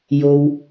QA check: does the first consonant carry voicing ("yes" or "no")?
yes